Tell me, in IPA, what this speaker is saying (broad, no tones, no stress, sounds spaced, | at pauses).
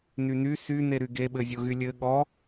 n y n y s y n e ɾ y ɡ e ɓ ɘ zʲ o ɣ y lʲ ɘ ɠ ɔ